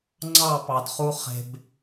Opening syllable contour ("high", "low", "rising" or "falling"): falling